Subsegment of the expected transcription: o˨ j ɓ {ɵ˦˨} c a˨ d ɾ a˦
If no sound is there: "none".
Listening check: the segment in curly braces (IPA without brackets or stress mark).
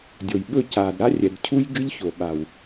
ɵ˦˨